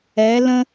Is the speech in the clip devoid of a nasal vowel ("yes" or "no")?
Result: no